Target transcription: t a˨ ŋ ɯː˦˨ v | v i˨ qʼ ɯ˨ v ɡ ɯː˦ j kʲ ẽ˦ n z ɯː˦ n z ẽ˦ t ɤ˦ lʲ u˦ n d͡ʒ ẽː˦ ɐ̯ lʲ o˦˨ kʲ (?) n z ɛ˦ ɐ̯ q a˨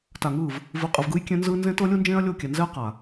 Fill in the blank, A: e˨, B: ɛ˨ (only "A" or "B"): B